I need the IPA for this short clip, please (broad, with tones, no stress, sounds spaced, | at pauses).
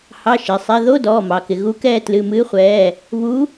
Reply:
h ɑ˧˥˧ ʃ ɪ˩˧˩ sˤ ɛ˧˥˧ ð o˧˥˧ d ɔː˩˧˩ m ɑ˩ k ɪ˩ ɣ u˨˥ k ɛː˦˨ t l ɨ˩˧˩ m ɨː˨˥ χʷ ɛː˩˧˩ | β u˨˥